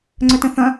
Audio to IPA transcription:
ŋ͡ǀœtə̃θɐ̃

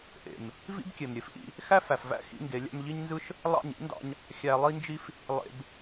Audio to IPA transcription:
ʔḛ˨m | vḭ˦bkʲe˨mɾʲe˨fʔḭ˧ | xæ˦fæ˨fvæ̰˦ xḭ˦ŋɡe˨˦lʲæ̰˦m ʎi˦ɲnzɯ˦ʃ | lˠɑ̰˦˨ɲ ḭ˨˦ndɑ̰˧ɲ | xʲæ˧lˠi˦nd͡ʒi˦f | lˠḛ˧b

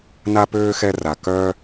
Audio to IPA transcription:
na˥pøː˥ xɛ˥ra˩ kœː˥

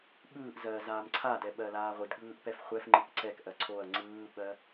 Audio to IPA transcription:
ɠɯːʔzɜː zaːmǀʰadɛ ɓɜlaːʁʷɨdɠɯːʔ pɛfχʷɛfŋ͡ǃɨk ǀɛkʔɜ ǀʰoɐ̯ ŋ͡ǀɯːɓɜ

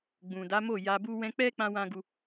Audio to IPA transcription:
ɡ͡bũ˨da˨˦mo˦˨ ja˧bu˦ wɛ̃˧k͡pɛ˦ k͡pã˦wã˦ɡu˦

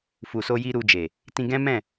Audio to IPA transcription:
fu˨so˧ji˧ ɾu˧d͡ʒe˨ | tĩ˧ɡɛ̃˦mɛ̃˦˨

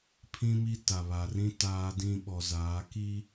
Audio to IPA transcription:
pʰĩ˦mi˦ ta˨βa˨rĩ˦ taː˦dĩ˦ ɓɔ˨zaː˨˦ ki˦

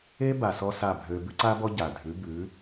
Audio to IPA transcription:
e˦ba˨sɔ˧ sa˦˨bʱø˧ bʉ˦ǀa˦bɔ˦ ɟa˨ dʱʉ˨˦bʉ˨˦

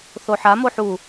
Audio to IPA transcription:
θoħa moħu

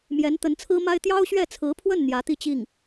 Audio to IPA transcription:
mjɛ˧˥nt̪ə˧˥nt͡sʰɹ̩˥ma˥ɪ̯ t̪jɑ˥ʊ̯ɕɥɛ˥˩t͡sʰɹ̩˧˥pʰwə˥˩n n̪jä˧˥t̪i˥˧t͡ɕi˥˩ŋ

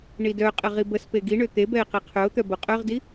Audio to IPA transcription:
ɳidœqʼə ʁibəspe ɡiɳø t̪ebɛɪ̯ qeqʰœʊ̯t̪œ boqʼœʁdi

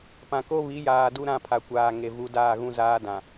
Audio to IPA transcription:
pã˨ko˦ βi˨˦jaː˨ du˦ɾã˦˨pʰa˨kʷaː˨ ŋe˨vu˨˦ daː˦˨ɣũ˦zaː˦dã˨

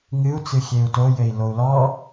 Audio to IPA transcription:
ŋɨu̯t͡sɨxʲeu̯ tojɘi̯ lou̯lɔ

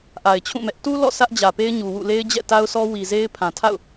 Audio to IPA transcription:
ʔa˨ɪ̯t͡ɕʰũ˦˨ mɛ˦ʔ tu˦ lɔ̰˦˨ sʰä˦ʔd͡ʑä˨pe˦ɪ̯ɲu˨ wṵ˦˨ le˦ɪ̯d͡ʑɛ̰˦˨ta˦ʊ̯sɔ˦ wi˨ze˦ɪ̯ pʰã˨tʰa̰˦˨ʊ̯

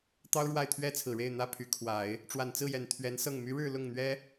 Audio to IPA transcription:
t̪ɑ˥ʊ̯ɻwa˥˩ɪ̯t̪ʰɥɛ˥t͡sʰɹ̩˨˩ ɻe˥˩ɪ̯ n̪ä˥pʰy˧˥ kʰwa˨˩˦ɪ̯ | ʈ͡ʂwa˨˩nt͡sɹ̩˥˩jɛ˨˩n t̪ʰɥɛ˧˥nsɤ˥˩ŋ my˧˥ɻɻ̩˥˧ lʊ˥˩ŋn̪ɥɛ˥

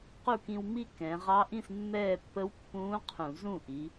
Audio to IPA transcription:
qu˥˩kĩ˧w mi˥˧kɛ̃ː˩˧ ʁɑ˧˥ʔĩ˥˩smːɛː˥˩ pːə˧˥wpːũː˧˥ qʰũ˧˩˧ zũ˥˩ʔi˩˧

